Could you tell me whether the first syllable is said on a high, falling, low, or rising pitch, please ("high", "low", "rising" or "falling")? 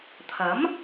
rising